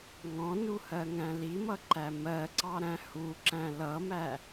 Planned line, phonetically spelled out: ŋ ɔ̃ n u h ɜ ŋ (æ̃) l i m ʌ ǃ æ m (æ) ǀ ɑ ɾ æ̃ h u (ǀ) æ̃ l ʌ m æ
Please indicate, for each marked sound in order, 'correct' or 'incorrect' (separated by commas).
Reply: correct, incorrect, incorrect